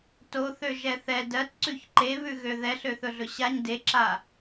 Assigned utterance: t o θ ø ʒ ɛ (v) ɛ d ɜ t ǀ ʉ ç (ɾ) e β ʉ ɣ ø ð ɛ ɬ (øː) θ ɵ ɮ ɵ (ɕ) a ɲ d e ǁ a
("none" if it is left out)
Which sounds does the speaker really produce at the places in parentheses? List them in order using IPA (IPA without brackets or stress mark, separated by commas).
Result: θ, ǃ, ø, ɕ